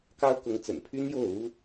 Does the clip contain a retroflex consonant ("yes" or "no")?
no